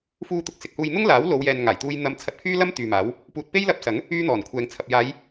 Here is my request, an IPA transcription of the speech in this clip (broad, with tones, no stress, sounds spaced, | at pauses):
f uː˧ t̪ ʊ˨ k̚ s ɪ˨ k̚ h uː˧ j n̪ ʊ˥ ŋ l aː˨˥ w l o˨˧ w j ɛː˨ n ŋ aː˨˩ j t̪ uː˧ j n̪ ɐ˧ m t͡sʰ ɐ˧ t̚ pʰ yː˥ l ɐ˥ m t̪ yː˨ m aː˨˥ w | p uː˨ t̚ p e˥ j l ɐ˧ p̚ s ɐ˨˥ ŋ | yː˥ n̪ ɔː˨˩ n kʷʰ ɛː˨˧ ŋ t͡sʰ ɐ˨ p̚ j aː˨˧ j